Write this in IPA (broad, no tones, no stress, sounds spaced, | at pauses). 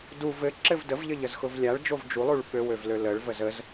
d u v ɘ ǁ ɘ v d ə v ʎ ɘ ʎ ə z x ʊ v lʲ a ɭ d͡ʒ o v d͡ʒ u lˠ u ɭ ɓ ø w ø v l ø l ə ɭ v ə z ə z